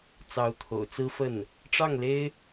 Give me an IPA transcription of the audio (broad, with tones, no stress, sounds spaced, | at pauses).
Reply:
t͡s ɑ˧˥ ʊ̯ t̪ʰ o̰˨˩ ʊ̯ t͡s ɹ̩˥ f ə˥˩ n | ʈ͡ʂ ɑ˥˩ ŋ l e˥ ɪ̯